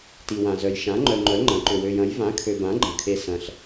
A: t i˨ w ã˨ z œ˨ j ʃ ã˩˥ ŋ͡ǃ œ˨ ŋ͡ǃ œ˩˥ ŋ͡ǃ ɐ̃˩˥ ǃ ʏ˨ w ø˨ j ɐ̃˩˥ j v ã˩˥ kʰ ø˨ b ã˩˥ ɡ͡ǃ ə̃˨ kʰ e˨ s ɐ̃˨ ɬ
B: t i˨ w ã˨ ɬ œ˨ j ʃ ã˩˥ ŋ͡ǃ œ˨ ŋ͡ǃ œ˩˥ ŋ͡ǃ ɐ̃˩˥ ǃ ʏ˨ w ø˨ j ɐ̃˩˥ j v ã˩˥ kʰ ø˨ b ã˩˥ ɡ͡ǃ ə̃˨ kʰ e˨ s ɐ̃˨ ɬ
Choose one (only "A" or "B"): A